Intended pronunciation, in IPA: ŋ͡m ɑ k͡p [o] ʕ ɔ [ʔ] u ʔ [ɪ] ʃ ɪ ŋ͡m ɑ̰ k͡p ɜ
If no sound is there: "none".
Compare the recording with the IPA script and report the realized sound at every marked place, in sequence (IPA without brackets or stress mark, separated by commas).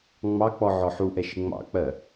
ɔ, ħ, ɛ